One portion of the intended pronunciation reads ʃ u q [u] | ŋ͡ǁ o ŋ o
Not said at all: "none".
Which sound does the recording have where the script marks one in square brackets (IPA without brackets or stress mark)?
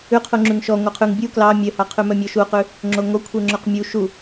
ʉ